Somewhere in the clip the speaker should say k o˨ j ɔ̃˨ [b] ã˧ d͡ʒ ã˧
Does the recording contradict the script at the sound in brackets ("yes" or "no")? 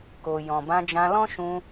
no